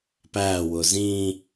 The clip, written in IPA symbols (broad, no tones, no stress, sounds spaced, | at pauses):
p æ w ʊ z ĩ